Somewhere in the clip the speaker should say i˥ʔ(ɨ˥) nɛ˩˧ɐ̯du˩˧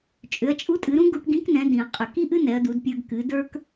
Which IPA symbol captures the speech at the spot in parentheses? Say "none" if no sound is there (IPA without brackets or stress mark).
ɨ˥